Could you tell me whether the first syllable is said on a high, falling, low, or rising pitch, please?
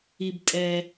low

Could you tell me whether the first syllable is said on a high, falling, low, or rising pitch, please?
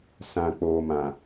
low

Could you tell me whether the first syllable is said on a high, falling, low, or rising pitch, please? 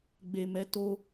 low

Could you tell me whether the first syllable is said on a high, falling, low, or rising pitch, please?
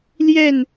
falling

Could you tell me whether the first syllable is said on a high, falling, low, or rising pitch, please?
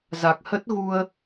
low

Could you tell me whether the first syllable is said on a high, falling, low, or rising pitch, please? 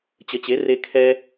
rising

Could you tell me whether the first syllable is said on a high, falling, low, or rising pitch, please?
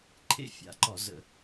high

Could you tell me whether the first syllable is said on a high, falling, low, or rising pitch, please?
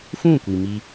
falling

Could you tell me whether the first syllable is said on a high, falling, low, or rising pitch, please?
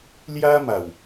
high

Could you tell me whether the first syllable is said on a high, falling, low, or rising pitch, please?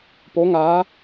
rising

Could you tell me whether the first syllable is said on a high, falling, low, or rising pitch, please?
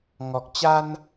low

